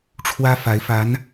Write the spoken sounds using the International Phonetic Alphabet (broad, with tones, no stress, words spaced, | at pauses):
ʈ͡ʂʰwä˥ fa˧˥ɪ̯fa˧˥n